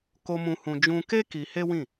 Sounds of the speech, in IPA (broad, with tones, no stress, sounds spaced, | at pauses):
k o˧ m ũ˧ h ũ˧ d͡ʒ ũ˧ k e˦ k i˧ h e˦ w ĩ˦˨